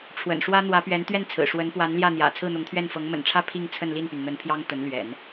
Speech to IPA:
ʈ͡ʂʰwə̰˨˩nʂwä˥ n̪wä˧˥pɥɛ˧˥n t̪ɥɛ˥˩nt͡sʰɹ̩˨˩ ʂwə˧˥npwa˧˥n ljä˥˩n̪jä̰˨˩ t͡sʰɹ̩˥˩n̪ʊ˧˥ŋt̪ʰɥɛ˥˩n fɤ˧˥ŋmə̰˨˩nʈ͡ʂʰä˥ pʰi˥˧ŋt͡sʰə˥˧nli˥˩npy˩n n̪ə˧˥npʰjɑ˥ŋ t̪ə˧˥nlɥɛ̰˨˩˦n

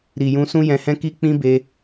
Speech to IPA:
ɾi˨jũ˧ sũ˦jɛ̃˧hɛ̃˦ ki˦k͡pĩ˦be˧

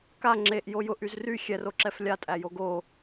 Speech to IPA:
ka ŋ͡ǁeʔ jojʊʔ yzry xʲɛro ǁɛflʲatʼæjo ɡo

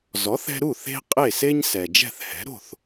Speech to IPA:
zɔ˩˥θɛ̤˧ɾu˥˩ θe̤˥ qʼe˥˩se˥ɲ sɛ˩d͡ʒɛ̤˥˩θhɛ̤˩˥ ɾo̤˥˩θ

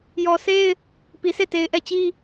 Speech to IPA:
jɔ˨se˦ɪ̯ | pi˨sʰe˦˨te˨ɪ̯ ʔɛ˦˨t͡ɕi˦

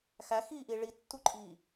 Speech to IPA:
xæxiːʔi ɭitːuǃʼiː

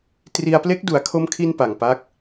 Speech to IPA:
tri˧a̯ple˦˥k̚ du˩˦a̯kʰo˧mkʰi˧n pa˨˩ŋpa˦˥k̚

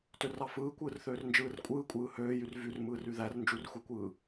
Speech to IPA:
tørɑfɯːkʷɯːr θøːrnd͡ʒɯːrkʷʼɯːkʷʼɯː høːjyr vyr mɯːryðær nd͡ʒurxʷekʷɯː

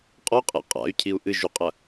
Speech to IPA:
qʼɔqʼḛ qʼa̰y̯cʰiu̯ ʔɨʒuqʼɐ

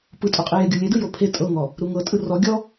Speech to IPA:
pɯtʼoqʼi jeɡʲulʲedɯ jopʰe tʼɤŋɔ | ɾuŋɤ tʼɯrɔ ɡʲɔ

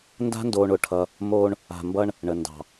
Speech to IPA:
nda̤˦ndoː˨ɳ ʊ˨ʈʰʌ˦ | moː˦ɳ | a̤˨mbʌ˦ɳ | ɳə˨ ndɑ̤˨

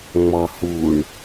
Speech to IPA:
ŋ͡mɔhuɳ

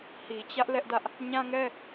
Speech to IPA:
hi˨t͡ɕä˦ʔ lɛ˦ʔdä˦ʔ | ɲã˦ŋɛ˦

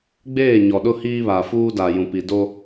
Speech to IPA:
ɡ͡beː˦˨ ɲɔ˨ɗʊ˦ hiː˦βa˨fuː˦da˨ jũ˨pi˨do˦

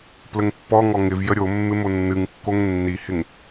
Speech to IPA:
pləŋpːɔŋɔ ŋɪvjə ɾʲo mːɪmonːɨŋkːoŋ nːihɪŋ

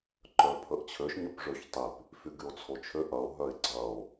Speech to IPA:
ǃœpʰəʔt͡ɕʰøʃ ɲœpʐøçtˤip | fyɡyo̯t͡sʰot͡ʃʰø ʔɐo̯ ɦœe̯ɡ͡ǀɐo̯

